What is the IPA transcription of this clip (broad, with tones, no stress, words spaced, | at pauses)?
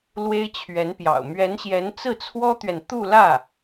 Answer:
lwe˥ɪ̯t͡ɕʰɥɛ˧˥npjɑ̰˨˩ʊ̯ mɥɛ˧˥nɕjɛ˧˥n t͡sɹ̩˥˩t͡sʰwɔ˥t̪ɥɛ˨n t̪u˥˧lä˥˩